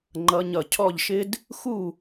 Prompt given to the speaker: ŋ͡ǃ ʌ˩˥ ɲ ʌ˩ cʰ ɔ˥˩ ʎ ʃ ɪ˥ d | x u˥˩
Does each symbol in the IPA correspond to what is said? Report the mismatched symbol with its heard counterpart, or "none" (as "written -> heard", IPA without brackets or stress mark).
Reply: none